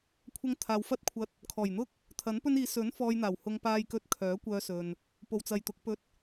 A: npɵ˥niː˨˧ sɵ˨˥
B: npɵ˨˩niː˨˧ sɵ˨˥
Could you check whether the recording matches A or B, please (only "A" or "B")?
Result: A